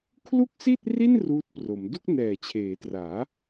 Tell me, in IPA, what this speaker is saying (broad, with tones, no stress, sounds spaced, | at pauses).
kʰ l u˥˩ k̚ s i˥˩ t̚ r i˥˩ n r uː˦˥ t̚ p r o˩˦ m d u˥˩ k̚ n ɛː˨˩ t͡ɕʰ eː˩˦ t r aː˩˦